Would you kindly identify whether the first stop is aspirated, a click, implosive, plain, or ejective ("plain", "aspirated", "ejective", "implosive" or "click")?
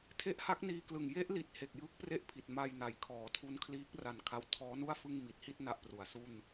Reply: aspirated